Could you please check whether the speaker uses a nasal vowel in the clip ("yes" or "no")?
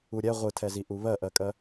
no